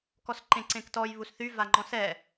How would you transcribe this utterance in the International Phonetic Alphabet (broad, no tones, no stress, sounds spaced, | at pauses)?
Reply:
k ɔ s ǃ ẽ ǀ ẽ k t ɔ j β u s θ y v a ŋ͡ǃ ɔ̃ s ɛ